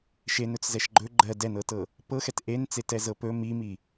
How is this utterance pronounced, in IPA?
ʃ e n ɵ t͡s z ɛ ʃ ɡ͡ǃ ɵ ɡ͡ǃ ɜ d ɛ n ɤ t ɤ | p ɤ x ɛ t ʔ e n t͡s e t ɛ z ɤ p ɵ m i m i

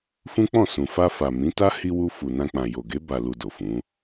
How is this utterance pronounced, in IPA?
f ũ˦ k͡p ɔ̃˦˨ s ũ˨ f a˧ f a˨ m ĩ˨˦ t a˦ h i˧ w u˧ f u˨ n ã˧ k͡p ã˨ j o˨ ɡ e˨˦ b a˧ l u˧ d o˨ f ũ˨˦

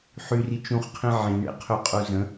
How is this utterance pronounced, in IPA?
ħ y r i t͡ʃ ũ χ qʰ ĩ ʕ ĩ ɳ ḛ qʰ ø qʼ u z ə̃

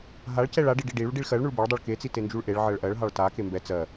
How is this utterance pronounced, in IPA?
ɦ a ɭ c ɛ ɭ a ɖ i ɖ i ɖ i ɭ u ɖ i ɭ x ɜ ɭ ɳ u ɭ b e ɭ dˤ ɜ ɭ k e t͡s i t e n d͡ʒ u ɭ ʔ e ɭ ʕ ɜ ɭ ʔ ɜ ɭ ɦ ɑ ɭ t a k e m b ɛ t͡s ɜ

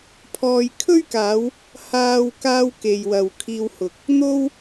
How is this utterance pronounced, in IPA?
pʰ ɔː˧ j kʰ ɵ˥ ɥ k aː˨˧ w | h aː˧ w k aː˧ w k e˨ j w ɐ˨ w kʰ iː˧ w h ʊ˨ k̚ | n̪ o˧ w

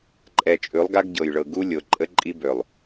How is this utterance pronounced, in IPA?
ǃʼ ɛ˨ t͡ʃʼ ʉ˨˦ lˠ ɡ a˦ ɡ ɟ ɤ˨ j ɭ ɤ˨ ɡ u˦ lʲ o˨ ǃʼ ə˦ ǃʼ i˦ b ø˨ lˠ

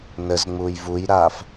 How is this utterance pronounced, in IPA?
n ə z ŋ͡m uː j v u j ɾ aː f

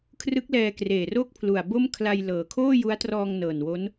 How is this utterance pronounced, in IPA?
kʰ r ɯ˦˥ k̚ l ɛː˧ k r eː˨˩ r o˥˩ k̚ pʰ l u˨˩ a̯ b o˥˩ m kʰ l a˧ j l ɤː˩˦ kʰ oː˥˩ j u˦˥ a̯ t r ɔː˧ ŋ n ɤː˨˩ n w o˦˥ n

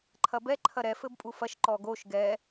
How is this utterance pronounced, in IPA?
ǃʰ ɐ b ɛ ǃʰ ɐ ɾ ɛ f ɘ b pʼ u f ɐ ʃ ǃ ɔ ɡ o ʃ ɡ ɛ

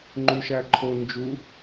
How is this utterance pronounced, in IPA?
ŋ͡ǃ u ʃ æ ǃʰ o n d͡ʒ u

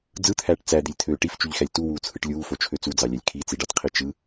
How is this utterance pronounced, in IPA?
d͡z ɯ t̪ʰ æː ʈ t͡s æ d̪ i lʲ t̪ʰ øː ʈ i f t͡ʃ y ʎ x æ lʲ t u w uː t͡sʰ ɯ ʈ lʲ uː f o t͡ʃʰ ø t͡s u d͡z ɑ lʲ æ lʲ kʰ i t͡s i ɖ ɑ t qʰ i t͡ʃ ɯ

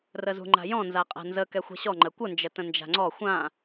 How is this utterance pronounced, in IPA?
r ə z ṳ ŋ͡ǃ a̤ j ɔ̃ n z a qʼ a̤ n z ə k ɛ xʷ ɛ̤ ɕ ɔ ŋ͡ǃ ə kʷ ə n d͡ʒ ə t ə̃ n d͡ʒ a̤ ŋ͡ǀ ɔ xʷ ã

